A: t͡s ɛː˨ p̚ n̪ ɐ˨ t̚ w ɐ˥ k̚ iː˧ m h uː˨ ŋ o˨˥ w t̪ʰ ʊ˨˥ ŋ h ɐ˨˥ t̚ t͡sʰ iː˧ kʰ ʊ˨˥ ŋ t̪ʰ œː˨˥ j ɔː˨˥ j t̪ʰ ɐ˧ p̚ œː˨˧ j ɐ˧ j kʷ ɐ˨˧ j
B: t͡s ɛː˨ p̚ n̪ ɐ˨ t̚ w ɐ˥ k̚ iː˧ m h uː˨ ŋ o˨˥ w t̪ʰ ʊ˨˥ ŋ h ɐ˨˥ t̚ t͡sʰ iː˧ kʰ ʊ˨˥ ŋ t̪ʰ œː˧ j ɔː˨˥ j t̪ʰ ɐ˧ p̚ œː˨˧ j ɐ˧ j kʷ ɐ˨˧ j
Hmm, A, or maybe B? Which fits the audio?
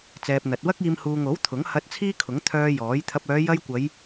B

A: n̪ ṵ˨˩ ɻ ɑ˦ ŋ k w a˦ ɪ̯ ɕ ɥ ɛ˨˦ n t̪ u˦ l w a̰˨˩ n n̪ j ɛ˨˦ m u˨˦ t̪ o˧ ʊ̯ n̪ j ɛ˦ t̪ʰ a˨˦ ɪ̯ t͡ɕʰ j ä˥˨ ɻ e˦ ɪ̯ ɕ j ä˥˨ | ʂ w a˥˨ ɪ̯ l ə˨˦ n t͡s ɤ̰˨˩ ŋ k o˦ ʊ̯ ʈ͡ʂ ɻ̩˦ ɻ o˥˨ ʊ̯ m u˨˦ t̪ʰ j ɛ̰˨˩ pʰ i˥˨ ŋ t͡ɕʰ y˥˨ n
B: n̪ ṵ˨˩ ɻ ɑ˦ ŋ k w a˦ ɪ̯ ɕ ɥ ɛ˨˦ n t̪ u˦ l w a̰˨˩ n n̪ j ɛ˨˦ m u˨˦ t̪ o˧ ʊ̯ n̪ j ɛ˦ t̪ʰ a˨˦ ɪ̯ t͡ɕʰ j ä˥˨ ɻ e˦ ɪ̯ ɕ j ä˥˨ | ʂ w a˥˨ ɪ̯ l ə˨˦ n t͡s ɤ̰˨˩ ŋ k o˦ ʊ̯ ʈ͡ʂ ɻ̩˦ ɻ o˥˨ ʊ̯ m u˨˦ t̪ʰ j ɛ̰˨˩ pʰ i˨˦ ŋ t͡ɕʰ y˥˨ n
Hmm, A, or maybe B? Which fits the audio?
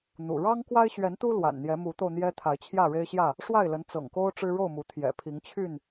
B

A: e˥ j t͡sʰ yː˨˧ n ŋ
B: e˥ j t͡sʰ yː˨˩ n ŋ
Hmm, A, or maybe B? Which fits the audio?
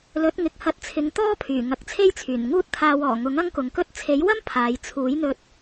B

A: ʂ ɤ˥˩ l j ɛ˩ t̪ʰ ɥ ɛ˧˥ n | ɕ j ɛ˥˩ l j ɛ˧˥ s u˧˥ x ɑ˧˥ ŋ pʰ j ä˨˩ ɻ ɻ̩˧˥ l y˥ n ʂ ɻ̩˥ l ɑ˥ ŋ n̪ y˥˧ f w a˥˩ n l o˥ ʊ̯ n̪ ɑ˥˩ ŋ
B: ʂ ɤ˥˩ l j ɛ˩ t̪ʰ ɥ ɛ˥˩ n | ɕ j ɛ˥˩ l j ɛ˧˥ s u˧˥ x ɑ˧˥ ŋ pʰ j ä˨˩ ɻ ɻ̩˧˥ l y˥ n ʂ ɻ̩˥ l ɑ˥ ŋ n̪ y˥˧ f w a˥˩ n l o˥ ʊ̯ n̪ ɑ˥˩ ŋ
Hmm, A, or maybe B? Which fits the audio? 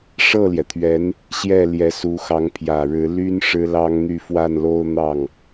A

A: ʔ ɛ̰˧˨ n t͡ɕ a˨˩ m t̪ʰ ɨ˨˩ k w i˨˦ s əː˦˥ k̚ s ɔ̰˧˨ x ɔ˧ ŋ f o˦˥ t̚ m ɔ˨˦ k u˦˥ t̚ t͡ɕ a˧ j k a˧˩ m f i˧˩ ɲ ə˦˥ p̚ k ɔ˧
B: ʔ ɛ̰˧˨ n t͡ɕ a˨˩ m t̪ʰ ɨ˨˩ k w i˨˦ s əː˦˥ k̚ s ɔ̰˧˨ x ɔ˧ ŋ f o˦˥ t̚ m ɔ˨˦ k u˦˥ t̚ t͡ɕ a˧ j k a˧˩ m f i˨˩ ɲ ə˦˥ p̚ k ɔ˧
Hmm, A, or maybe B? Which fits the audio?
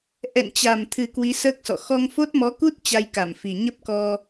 B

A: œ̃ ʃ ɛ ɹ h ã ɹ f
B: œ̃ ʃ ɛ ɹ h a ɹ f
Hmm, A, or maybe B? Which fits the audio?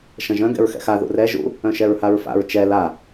B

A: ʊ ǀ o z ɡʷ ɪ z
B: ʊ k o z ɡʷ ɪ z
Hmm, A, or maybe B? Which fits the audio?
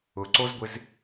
A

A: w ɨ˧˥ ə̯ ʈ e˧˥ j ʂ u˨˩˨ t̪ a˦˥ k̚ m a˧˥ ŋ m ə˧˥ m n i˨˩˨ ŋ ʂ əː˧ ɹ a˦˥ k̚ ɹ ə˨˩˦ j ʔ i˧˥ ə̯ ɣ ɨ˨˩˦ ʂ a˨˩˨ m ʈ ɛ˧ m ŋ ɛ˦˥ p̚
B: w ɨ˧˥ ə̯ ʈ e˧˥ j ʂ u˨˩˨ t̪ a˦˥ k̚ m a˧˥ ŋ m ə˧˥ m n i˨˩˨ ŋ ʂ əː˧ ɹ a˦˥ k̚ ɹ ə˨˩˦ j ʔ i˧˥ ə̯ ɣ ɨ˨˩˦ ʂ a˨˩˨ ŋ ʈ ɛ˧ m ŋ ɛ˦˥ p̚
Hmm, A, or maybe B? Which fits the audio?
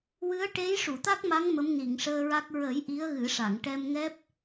B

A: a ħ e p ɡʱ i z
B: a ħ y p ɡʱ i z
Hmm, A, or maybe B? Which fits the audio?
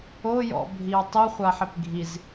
A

